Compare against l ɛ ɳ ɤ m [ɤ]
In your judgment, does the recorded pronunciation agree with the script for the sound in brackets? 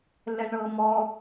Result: no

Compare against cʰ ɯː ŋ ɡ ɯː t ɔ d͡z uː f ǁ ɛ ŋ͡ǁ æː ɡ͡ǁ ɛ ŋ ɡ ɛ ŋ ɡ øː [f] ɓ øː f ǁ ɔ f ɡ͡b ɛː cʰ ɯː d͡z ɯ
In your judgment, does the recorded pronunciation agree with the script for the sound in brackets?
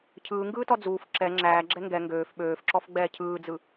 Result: yes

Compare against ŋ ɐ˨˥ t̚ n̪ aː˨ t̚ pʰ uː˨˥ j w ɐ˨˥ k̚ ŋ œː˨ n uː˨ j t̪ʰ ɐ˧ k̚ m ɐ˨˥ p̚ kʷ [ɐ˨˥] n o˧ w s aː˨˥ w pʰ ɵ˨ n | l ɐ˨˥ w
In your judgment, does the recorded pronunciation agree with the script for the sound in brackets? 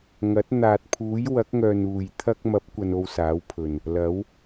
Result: no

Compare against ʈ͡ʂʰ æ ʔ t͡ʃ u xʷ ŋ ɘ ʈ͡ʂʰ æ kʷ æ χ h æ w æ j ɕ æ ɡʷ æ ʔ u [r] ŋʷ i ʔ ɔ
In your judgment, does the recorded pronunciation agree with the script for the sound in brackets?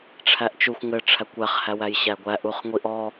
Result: no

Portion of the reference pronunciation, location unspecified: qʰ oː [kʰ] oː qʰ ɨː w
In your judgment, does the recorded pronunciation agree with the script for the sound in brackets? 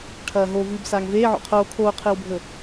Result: yes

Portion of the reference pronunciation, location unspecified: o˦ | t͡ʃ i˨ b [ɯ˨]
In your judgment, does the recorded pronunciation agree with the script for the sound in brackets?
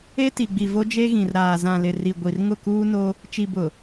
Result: no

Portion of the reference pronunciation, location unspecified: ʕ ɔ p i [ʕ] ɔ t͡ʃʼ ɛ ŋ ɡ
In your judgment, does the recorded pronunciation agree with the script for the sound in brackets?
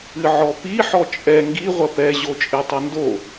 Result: no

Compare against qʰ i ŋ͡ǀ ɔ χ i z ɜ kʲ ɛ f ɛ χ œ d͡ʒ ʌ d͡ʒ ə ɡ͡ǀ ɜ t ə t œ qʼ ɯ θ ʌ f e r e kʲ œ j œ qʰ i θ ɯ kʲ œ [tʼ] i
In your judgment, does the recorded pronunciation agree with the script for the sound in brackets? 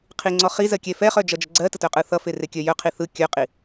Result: no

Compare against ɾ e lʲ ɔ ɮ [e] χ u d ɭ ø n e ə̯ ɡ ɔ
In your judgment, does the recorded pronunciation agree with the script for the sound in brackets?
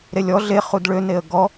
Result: yes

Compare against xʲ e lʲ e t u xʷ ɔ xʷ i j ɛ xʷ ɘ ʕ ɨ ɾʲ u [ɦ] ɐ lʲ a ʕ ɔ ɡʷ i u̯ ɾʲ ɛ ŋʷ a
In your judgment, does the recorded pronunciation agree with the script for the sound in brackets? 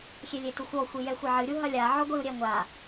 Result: yes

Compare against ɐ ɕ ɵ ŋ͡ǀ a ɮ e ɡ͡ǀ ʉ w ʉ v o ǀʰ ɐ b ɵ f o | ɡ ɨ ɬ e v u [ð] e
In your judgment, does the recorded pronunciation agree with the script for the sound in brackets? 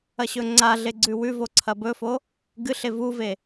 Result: no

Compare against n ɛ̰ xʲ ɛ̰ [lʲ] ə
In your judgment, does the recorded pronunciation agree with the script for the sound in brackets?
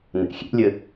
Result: yes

